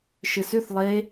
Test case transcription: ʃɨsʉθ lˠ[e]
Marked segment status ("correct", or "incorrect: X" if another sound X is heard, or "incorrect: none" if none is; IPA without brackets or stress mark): correct